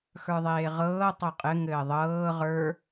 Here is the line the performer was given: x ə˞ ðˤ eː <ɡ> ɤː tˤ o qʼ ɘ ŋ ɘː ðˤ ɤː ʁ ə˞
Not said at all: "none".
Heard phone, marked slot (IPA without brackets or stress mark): ʁ